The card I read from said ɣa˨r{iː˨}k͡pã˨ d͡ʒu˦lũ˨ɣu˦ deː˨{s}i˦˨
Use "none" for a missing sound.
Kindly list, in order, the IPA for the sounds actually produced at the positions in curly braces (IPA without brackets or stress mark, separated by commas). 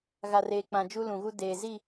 eː˨, z